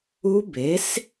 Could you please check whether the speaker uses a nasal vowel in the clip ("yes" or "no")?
no